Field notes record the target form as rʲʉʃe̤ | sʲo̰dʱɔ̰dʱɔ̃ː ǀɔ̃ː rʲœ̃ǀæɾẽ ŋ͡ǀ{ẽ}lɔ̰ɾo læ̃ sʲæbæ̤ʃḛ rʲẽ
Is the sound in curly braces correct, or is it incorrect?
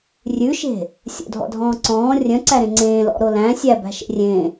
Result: incorrect